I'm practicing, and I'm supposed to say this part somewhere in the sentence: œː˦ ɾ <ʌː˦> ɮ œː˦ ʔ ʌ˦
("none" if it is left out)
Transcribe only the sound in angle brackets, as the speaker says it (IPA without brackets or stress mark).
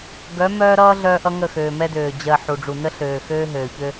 ʌː˦